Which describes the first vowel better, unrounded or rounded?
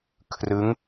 unrounded